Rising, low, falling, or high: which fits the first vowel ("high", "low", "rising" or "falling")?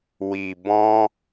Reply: low